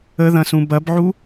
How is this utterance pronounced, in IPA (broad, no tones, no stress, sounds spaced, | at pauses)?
ə ð ɐ̃ s ũ b ɐ b ʕ u